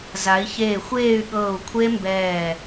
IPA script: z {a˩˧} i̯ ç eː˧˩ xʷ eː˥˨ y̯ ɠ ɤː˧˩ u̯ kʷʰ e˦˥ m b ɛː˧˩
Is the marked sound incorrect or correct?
correct